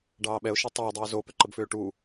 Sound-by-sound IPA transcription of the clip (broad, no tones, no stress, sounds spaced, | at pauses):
ɖ ɑː ɓ ɛ ʊ̯ ʃ ɛ tˤ ʏː dˤ ɛ ʊ̯ z o p ʏ ǃ ə b f ʏː ʈ uː